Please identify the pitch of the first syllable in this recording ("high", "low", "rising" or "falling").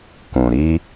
low